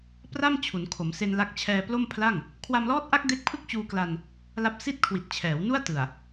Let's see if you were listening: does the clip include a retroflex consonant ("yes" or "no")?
no